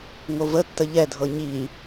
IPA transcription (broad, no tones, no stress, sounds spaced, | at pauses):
ŋ o v ə tː ə ʎ ɛ dʱ ɤ ɲ i